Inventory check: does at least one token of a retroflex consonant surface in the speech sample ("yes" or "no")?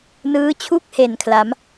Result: no